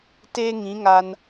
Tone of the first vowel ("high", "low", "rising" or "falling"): high